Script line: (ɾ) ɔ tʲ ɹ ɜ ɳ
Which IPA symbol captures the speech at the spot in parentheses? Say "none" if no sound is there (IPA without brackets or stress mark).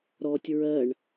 ɾ